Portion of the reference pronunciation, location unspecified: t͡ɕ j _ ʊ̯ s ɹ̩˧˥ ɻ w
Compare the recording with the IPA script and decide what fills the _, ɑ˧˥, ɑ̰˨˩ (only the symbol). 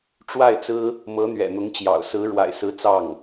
ɑ̰˨˩